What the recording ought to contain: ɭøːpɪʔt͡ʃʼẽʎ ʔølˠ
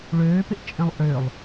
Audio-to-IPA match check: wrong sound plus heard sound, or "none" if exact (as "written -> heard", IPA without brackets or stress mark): ʎ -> lˠ